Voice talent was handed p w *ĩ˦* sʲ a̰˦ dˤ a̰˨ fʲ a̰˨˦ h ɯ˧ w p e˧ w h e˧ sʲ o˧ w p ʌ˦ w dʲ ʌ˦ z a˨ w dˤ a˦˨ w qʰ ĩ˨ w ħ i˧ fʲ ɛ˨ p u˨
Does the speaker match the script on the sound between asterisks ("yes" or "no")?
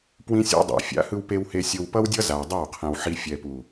yes